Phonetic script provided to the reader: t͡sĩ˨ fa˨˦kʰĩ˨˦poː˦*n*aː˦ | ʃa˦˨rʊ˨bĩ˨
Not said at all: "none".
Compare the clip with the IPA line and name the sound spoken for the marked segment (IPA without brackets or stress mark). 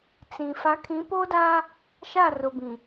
d